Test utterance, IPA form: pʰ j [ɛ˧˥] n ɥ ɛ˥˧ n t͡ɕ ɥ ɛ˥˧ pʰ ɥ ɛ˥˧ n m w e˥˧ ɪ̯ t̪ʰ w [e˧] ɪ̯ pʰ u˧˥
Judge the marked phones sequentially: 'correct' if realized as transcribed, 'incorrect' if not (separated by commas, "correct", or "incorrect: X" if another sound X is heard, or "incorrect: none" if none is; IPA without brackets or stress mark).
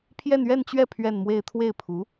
incorrect: ɛ˥˧, incorrect: e˥˩